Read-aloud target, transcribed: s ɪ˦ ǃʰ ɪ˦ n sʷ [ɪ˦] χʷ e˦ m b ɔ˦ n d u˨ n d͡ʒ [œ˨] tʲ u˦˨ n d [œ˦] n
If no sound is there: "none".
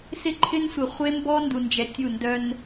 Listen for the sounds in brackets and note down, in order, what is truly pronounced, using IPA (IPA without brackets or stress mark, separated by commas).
ɪ˨, ɛ˨, œ˦